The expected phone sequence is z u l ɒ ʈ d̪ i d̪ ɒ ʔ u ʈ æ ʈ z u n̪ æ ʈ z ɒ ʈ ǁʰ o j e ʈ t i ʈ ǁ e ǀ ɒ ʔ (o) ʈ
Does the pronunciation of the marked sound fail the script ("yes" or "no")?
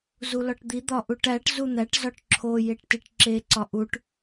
yes